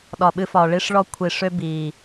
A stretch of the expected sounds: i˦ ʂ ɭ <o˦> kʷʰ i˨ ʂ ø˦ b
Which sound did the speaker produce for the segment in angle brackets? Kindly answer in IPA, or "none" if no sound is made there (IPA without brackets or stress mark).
ɔ˦